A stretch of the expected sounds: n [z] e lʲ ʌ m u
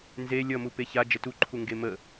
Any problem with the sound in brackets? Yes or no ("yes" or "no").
no